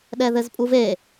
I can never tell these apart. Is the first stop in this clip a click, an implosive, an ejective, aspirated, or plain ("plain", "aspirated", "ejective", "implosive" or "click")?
implosive